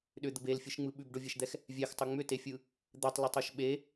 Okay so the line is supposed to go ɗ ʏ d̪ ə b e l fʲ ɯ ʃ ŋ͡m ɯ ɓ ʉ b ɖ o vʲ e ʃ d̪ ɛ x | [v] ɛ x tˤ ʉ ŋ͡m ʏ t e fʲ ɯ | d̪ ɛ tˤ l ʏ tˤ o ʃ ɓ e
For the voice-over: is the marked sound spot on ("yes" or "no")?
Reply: no